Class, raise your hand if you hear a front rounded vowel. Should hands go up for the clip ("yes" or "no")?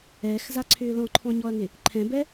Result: yes